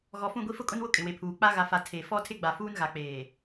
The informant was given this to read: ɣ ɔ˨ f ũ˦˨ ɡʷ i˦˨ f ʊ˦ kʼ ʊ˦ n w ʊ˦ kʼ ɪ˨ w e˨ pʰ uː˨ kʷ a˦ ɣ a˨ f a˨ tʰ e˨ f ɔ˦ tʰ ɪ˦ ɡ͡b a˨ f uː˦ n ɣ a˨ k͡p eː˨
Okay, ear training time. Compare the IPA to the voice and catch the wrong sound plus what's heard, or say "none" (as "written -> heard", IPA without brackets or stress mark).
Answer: kʷ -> k͡p